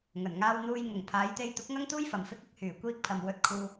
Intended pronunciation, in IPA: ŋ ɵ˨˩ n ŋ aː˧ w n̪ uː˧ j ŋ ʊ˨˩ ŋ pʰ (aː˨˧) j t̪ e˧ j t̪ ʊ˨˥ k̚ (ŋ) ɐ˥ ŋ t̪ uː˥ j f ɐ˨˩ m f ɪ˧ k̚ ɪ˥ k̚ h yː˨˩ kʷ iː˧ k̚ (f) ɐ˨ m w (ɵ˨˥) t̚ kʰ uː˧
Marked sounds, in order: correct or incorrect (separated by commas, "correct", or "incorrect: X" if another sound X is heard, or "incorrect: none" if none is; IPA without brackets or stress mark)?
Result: correct, correct, incorrect: pʰ, incorrect: ɵ˧